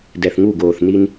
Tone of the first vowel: low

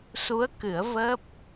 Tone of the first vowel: rising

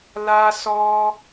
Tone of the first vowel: high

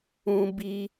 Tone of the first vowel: high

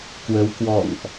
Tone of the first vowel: rising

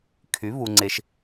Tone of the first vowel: rising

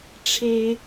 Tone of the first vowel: high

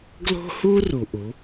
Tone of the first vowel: high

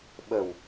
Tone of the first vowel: low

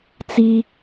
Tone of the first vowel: high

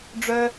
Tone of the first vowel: high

